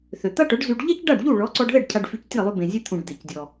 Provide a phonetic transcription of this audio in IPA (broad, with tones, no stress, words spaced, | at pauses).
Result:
θø˩t̪a˥ʈœ˩˥ɖzy˧ɖ ʎɛ˥cɖa˥˩ɖʎu˥˩ ɭɔ˩˥ǀɔ˧ɖðɛ˥˩ɖ cʰa˧ɖfy˧ctʲɛ˥˩lˠy˧ bẽ˩zʲɛ˧t̪ʰũ˩ɖ d̪e˩cdʲɔ˩